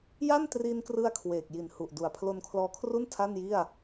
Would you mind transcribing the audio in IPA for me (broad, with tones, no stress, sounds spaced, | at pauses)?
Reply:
j a˥˩ n t r i˧ n k r ɯ˧ a̯ kʰ w eː˨˩ k̚ j i˨˩ n h u˨˩ ʔ d u˨˩ a̯ pʰ l o˧ n kʰ l ɔː˧ kʰ r u˥˩ n tʰ a˥˩ n j i˥˩ a̯